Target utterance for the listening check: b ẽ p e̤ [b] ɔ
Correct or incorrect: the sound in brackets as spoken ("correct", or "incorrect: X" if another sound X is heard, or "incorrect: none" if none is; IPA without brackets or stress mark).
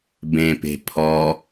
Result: incorrect: pʰ